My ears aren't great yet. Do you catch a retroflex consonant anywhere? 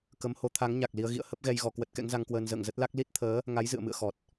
no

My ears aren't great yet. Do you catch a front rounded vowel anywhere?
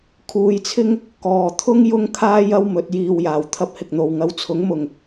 no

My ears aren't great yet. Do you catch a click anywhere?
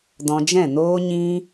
no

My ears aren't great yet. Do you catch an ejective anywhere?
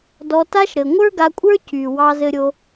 yes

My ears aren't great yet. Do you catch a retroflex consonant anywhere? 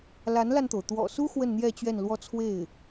no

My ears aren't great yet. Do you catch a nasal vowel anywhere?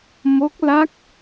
no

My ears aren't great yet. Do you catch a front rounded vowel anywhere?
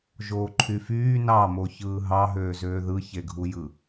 yes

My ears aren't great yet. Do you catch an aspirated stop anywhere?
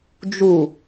no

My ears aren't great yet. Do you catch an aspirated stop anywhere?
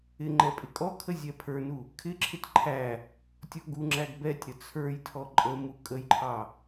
yes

